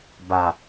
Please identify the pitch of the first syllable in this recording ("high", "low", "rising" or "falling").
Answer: low